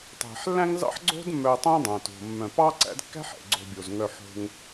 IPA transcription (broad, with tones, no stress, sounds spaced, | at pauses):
tˤ ɛ̤˩ ħ lː æ̃˦ ŋ z ɑ̰˦ ħ ɡ͡ǀ o̤˥ d mː œ˨ tˤ õ˦ dˤ æ̃˩ t o̤˩ mː œ̃˩ p ɑ˥ ǀ æ̰˦ d kː æ̤˥ ħ ɛ̰˩ ɡ͡ǀ o̤˨ bʲ o˩ z ŋ œ˨ ħ o̤˨ ŋ